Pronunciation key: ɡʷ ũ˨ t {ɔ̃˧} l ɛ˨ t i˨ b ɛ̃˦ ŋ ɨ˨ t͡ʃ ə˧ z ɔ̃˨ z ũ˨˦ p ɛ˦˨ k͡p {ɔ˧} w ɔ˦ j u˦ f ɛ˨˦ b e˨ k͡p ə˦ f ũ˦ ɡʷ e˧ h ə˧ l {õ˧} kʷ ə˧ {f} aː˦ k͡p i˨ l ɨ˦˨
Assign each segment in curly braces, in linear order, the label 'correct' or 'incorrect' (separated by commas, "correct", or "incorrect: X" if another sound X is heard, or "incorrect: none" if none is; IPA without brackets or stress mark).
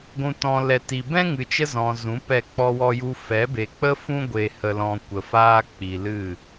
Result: incorrect: ɔ̃˨, incorrect: ɔ˦, incorrect: ɔ̃˧, correct